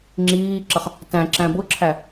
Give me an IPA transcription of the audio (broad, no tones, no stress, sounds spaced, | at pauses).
ŋ͡ǁ iː ǁ ʌ χ | t æ̃ ǁ æ̃ b ʊ ǁʰ æ